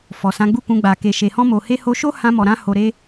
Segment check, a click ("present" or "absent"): absent